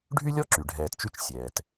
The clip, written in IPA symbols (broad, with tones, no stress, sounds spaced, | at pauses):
ɖʱ y˥ lʲ ɔ˥ ǁ y˩ ɖʱ ɛː˨ t t͡ʃ y˦ t͡ʃ sʲ ɛː˩ t